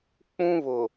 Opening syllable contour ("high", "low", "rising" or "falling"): high